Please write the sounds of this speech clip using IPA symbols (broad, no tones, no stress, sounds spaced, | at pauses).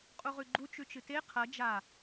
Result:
qʼ u ʁ ʉ ɡ͡ǃ u t͡ʃ ʉ t͡ʃ ɨ t e qʰ ɐ d͡ʒ a